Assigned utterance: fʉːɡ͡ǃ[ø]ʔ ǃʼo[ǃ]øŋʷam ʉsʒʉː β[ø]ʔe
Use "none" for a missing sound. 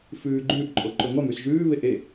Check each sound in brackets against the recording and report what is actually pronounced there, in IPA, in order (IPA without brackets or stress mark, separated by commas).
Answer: ʉ, ǃ, e